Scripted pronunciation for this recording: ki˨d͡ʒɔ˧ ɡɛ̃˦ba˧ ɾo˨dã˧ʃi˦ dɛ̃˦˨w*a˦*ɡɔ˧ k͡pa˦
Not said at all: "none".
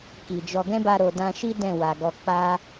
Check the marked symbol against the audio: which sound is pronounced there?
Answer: a˨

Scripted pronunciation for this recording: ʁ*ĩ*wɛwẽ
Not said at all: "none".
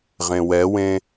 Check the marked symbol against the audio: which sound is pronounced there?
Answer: ẽ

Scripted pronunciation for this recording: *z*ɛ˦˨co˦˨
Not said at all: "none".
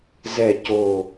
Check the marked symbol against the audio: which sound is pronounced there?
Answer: z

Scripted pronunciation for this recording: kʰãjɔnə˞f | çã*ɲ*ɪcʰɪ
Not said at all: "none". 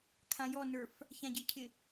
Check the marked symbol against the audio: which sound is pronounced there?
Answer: ɟ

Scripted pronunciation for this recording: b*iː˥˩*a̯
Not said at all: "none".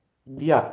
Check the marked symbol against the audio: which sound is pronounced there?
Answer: i˥˩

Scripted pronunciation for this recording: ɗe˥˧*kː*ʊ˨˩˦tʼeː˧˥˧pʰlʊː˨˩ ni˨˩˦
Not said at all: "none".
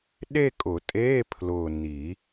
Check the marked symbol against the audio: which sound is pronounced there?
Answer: kʼ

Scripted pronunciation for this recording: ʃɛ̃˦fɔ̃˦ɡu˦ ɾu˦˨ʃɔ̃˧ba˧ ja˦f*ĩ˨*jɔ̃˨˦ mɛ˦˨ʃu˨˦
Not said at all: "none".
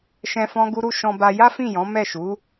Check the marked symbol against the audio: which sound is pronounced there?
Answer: ĩ˦˨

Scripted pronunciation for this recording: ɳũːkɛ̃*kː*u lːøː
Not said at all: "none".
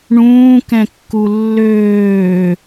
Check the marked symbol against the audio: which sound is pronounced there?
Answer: kː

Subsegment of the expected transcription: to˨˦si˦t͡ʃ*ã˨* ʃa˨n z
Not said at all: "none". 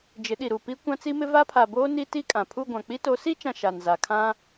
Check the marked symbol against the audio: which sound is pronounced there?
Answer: ã˨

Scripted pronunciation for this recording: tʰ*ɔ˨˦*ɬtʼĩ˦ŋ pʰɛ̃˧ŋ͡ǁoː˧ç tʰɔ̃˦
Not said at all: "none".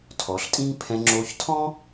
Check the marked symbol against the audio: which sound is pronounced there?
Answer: ɔ˨˦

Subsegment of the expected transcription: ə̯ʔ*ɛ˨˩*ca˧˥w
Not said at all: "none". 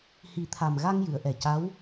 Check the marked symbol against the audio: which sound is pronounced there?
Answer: ɛ˨˩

